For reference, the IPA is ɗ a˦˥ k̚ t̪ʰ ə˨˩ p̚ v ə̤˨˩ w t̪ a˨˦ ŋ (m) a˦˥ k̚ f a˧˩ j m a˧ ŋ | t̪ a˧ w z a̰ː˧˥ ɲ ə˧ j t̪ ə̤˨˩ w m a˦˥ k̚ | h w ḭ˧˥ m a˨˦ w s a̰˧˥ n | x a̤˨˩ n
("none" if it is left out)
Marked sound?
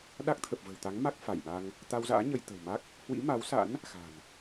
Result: m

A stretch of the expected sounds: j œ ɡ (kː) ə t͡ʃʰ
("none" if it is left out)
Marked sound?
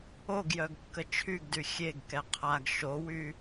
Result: kː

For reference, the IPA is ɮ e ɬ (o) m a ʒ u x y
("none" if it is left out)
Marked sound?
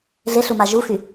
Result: u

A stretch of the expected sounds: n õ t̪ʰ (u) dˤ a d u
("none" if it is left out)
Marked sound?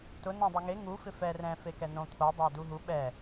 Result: o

